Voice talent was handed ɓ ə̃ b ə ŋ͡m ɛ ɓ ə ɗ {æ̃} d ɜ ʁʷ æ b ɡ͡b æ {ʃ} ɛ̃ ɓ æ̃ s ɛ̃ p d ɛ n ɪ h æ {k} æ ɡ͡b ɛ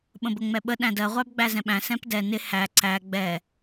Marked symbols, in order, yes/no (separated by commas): yes, no, no